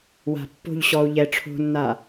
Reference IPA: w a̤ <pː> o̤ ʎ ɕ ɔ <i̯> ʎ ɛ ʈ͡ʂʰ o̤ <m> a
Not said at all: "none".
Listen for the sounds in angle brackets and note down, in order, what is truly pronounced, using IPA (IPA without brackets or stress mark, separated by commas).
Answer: pː, u̯, nː